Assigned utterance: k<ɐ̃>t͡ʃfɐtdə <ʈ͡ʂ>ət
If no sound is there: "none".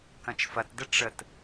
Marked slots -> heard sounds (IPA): ɐ̃, ʈ͡ʂ

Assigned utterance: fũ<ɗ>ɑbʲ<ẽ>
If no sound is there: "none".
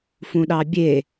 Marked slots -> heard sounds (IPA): ɗ, e

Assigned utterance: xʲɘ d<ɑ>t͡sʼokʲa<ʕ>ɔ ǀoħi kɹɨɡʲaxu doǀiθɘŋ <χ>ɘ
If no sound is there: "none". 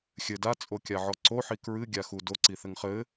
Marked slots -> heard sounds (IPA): a, ʕ, χ

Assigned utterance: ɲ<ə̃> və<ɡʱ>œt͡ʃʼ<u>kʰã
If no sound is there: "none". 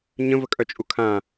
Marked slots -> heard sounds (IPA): ə̃, kʼ, u

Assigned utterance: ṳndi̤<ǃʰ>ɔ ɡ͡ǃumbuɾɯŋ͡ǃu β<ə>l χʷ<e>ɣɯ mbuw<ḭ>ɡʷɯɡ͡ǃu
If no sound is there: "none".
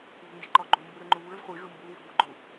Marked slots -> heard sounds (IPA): ǃ, ɯ, i, i̤

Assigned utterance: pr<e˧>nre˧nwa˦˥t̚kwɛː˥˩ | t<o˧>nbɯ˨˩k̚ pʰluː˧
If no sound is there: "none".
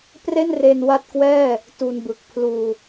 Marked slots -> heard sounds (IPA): e˥˩, u˧

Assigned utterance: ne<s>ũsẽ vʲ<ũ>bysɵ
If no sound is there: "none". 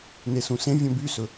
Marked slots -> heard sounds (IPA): s, õ

